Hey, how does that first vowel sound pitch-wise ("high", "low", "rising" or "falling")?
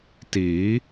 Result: rising